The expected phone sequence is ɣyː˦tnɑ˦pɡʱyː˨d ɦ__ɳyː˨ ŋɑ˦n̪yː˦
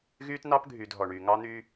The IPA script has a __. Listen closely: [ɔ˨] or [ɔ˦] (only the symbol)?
ɔ˨